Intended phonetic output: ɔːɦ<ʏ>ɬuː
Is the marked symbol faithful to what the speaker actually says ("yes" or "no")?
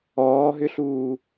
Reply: yes